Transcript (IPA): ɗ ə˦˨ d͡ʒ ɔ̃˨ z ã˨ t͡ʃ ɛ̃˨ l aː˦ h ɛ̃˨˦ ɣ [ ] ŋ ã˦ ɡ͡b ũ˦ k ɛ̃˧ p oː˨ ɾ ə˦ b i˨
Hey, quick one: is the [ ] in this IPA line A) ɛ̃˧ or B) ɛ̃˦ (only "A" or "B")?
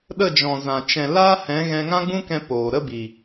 A